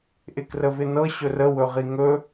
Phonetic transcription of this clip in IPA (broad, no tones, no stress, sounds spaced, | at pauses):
ʔ ɪ k r ə v ɪ n ɤ ɕ ɵ r ə w ɵ ʁ i ŋ ɵ